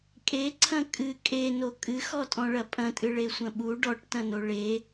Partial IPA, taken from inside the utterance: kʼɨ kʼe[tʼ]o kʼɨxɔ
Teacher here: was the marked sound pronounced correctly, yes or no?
no